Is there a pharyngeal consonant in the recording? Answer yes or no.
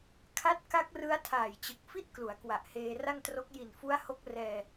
no